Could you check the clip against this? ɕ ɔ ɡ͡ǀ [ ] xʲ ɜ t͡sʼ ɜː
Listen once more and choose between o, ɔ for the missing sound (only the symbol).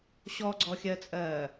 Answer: ɔ